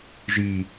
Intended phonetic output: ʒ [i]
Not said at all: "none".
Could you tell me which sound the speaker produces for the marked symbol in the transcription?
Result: i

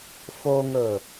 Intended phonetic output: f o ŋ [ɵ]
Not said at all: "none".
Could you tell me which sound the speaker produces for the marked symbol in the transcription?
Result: ɵ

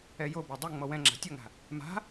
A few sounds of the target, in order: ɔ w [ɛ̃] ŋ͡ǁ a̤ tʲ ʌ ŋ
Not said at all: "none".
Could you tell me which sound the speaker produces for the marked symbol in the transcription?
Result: ɛ̃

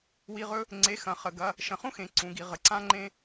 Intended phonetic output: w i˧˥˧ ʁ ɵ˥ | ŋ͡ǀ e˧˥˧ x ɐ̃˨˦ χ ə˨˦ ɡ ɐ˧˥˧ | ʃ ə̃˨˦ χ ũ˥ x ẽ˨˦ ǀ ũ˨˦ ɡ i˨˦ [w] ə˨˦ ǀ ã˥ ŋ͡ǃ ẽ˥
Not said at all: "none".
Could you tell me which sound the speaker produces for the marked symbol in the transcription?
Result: ʁ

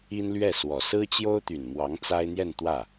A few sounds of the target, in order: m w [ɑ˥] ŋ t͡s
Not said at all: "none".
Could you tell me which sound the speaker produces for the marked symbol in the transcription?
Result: ɑ˧˥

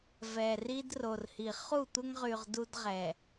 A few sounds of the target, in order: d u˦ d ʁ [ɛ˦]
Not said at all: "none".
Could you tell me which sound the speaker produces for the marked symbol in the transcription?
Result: ɛ˨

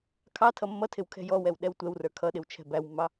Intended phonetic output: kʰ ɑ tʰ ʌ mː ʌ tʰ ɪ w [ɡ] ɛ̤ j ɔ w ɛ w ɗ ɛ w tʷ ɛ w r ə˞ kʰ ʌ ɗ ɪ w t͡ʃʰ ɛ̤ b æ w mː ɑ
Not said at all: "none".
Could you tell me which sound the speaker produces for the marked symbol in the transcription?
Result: kʰ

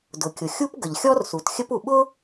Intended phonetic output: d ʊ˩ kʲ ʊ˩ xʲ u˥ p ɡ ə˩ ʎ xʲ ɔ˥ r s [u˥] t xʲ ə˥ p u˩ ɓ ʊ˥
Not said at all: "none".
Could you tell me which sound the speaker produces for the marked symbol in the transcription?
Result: u˩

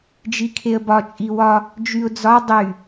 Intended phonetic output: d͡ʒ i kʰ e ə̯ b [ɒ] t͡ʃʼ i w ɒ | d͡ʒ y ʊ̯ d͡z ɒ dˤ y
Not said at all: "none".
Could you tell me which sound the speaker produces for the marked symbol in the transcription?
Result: ɒ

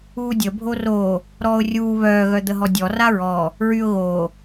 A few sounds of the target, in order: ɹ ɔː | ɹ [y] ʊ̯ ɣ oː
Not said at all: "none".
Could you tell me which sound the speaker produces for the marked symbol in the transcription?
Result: y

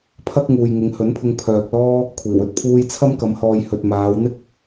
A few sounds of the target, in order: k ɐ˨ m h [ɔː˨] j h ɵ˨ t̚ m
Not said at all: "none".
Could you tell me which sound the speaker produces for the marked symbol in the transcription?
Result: ɔː˨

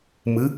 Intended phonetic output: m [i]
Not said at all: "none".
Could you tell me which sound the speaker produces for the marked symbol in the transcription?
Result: ɨ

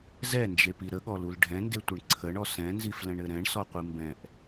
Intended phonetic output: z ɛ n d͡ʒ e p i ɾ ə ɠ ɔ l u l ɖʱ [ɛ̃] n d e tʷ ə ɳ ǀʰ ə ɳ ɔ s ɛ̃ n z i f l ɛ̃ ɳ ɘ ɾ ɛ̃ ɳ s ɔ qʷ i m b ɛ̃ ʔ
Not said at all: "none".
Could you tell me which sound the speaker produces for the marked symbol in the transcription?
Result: ɛ̃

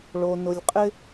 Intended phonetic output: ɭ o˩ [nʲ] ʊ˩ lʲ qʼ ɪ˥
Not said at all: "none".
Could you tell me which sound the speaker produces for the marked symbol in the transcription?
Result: n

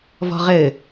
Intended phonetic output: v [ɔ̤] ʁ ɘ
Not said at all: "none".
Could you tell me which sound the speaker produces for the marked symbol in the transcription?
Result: ɔ̤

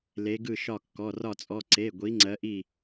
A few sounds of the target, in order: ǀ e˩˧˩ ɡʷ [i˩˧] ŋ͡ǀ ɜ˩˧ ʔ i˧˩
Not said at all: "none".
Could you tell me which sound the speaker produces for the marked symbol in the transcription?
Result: i˩˧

